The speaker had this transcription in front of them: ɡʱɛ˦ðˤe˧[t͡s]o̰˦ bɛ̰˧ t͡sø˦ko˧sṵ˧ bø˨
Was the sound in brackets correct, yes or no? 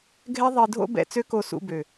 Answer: no